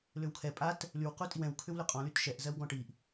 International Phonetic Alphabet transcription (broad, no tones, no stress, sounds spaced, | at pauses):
l ʏ w kʰ ɛ pʼ a t | l y w q u tʼ i w ɛ̃ w kʰ ʏ w l ʏ qʼ ɔ̃ l y t ʃ ɛ ʔ z ɜ w ɡ ɔ̃ ʈ i ʔ